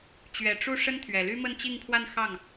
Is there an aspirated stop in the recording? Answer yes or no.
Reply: yes